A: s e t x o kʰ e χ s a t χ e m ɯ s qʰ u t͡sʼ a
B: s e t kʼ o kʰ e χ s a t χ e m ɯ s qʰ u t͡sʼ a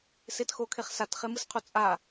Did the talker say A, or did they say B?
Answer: A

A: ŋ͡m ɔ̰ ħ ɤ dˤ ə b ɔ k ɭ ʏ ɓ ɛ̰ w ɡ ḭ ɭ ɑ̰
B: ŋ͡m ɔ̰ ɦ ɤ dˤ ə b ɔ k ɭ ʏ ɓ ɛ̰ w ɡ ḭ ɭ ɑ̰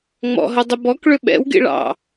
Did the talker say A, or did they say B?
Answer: B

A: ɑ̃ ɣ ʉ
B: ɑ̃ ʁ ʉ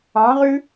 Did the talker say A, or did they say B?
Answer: B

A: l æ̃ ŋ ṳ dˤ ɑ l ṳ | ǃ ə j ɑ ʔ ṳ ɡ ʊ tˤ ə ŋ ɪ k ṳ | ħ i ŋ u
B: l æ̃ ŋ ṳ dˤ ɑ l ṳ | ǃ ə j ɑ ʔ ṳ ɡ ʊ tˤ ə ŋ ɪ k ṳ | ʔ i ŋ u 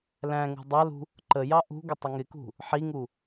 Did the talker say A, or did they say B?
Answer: A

